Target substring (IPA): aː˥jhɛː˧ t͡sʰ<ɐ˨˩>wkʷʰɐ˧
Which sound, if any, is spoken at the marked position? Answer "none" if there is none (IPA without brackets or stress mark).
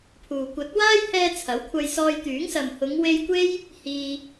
ɐ˨˥